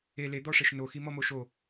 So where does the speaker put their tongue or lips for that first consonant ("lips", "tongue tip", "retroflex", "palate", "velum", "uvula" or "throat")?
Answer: tongue tip